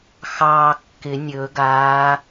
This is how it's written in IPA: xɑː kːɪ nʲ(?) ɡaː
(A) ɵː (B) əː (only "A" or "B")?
A